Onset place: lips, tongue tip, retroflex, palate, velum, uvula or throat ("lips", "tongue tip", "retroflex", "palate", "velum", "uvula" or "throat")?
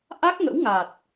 throat